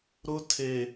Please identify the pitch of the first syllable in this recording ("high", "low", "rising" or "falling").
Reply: high